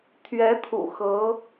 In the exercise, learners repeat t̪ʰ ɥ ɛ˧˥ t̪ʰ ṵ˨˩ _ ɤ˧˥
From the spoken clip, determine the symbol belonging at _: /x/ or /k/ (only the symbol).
x